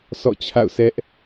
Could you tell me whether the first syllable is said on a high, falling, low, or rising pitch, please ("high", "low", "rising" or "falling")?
falling